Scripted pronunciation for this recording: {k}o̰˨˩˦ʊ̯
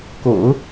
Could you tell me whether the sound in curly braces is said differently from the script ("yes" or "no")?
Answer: no